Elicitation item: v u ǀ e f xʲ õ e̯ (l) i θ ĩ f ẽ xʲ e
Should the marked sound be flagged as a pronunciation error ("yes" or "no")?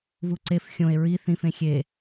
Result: yes